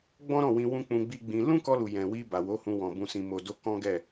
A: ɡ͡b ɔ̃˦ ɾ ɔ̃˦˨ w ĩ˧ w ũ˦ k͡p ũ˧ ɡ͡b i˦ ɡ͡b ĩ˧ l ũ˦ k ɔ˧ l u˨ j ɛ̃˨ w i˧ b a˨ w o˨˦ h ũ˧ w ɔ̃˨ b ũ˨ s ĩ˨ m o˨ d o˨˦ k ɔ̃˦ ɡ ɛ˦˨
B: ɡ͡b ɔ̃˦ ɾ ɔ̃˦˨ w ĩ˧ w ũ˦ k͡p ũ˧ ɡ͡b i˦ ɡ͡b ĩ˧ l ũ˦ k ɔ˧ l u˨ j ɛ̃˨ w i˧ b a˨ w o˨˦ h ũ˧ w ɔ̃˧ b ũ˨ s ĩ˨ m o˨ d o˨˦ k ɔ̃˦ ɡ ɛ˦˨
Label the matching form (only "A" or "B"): A